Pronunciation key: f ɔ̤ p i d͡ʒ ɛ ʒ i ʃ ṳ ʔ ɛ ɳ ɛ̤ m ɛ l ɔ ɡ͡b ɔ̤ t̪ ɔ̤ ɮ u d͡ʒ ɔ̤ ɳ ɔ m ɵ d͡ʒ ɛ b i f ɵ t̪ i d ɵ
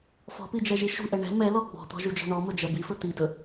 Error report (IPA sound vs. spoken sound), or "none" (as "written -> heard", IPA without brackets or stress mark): ɮ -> ʒ